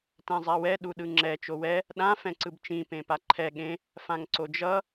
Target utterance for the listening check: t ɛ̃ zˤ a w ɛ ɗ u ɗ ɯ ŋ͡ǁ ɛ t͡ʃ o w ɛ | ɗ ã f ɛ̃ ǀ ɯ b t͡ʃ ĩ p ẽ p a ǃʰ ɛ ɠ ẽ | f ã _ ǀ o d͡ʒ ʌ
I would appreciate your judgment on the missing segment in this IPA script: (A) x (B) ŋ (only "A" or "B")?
B